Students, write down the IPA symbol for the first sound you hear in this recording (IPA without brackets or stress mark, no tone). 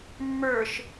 mː